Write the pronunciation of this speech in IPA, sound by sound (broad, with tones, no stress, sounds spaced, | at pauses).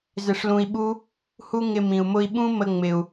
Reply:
z ɪ˧ ʂ l ũ˧ i̯ ɓ u˦ | h u˦ ŋ ɪ˧ m ĩ˨ u̯ m ʊ˧ i̯ ɓ ũ˦ m ə˧ ŋ͡m ɪ˨ u̯